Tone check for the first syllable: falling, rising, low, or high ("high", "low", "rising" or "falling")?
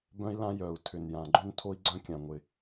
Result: high